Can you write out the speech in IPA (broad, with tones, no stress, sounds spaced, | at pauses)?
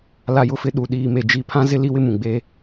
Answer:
l a˨ j ʊ˨ f ɪ˨˦ ɗ u˨ ɗ iː˨ m e˨ d͡ʒ i˨ pʰ ã˦ z ɪ˦ l i˦ w ɪ˦ m ũ˨ ɡ͡b e˦